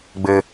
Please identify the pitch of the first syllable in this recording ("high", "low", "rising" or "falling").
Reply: low